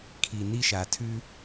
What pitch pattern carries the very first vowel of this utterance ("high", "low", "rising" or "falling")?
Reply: low